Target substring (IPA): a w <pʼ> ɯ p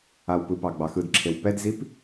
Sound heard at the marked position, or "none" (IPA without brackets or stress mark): p